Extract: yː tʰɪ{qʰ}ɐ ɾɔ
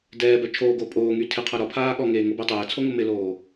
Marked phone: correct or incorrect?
correct